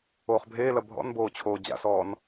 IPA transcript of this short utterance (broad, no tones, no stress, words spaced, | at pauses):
oːχbʱeːlɐ bʱɔ̰nboː t͡ɕʰoːd͡ʑa̰sɔːn